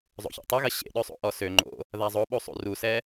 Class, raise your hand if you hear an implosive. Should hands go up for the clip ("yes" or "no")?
yes